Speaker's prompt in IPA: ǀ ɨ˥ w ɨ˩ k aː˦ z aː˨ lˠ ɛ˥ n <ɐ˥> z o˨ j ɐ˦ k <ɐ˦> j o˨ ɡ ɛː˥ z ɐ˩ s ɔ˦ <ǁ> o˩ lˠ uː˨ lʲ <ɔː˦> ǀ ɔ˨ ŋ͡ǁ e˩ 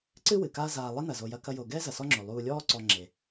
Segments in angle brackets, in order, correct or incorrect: incorrect, correct, incorrect, correct

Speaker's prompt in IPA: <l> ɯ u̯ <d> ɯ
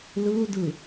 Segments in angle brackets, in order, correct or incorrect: correct, correct

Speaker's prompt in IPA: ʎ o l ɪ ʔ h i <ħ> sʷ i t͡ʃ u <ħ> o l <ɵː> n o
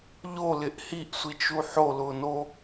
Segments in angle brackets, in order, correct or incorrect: incorrect, correct, incorrect

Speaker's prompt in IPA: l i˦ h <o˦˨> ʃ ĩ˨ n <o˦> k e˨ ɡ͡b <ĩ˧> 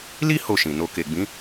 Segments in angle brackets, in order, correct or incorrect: correct, incorrect, incorrect

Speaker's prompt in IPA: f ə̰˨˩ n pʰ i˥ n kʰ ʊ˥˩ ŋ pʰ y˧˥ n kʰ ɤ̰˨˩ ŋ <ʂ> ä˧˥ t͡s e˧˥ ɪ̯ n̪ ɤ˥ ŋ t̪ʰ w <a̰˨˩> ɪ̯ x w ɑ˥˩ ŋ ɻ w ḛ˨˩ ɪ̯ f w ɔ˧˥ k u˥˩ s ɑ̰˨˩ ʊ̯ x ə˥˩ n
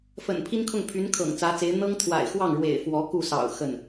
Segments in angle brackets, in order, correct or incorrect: incorrect, correct

